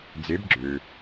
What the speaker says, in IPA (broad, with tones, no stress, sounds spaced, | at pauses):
d͡z e˨˥ b ɡ͡ǁ ø˩